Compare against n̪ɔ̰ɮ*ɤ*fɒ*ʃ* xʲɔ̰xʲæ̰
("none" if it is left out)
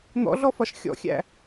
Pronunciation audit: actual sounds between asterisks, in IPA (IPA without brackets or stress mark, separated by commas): ɔ, ʃ